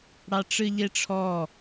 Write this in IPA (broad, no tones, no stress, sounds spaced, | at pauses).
ɽ ɑ ʈ͡ʂ ɨ ʎ e ʈ͡ʂʰ ɔ